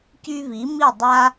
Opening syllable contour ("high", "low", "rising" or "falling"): high